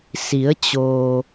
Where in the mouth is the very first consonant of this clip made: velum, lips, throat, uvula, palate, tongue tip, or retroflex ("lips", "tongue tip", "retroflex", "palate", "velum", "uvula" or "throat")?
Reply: tongue tip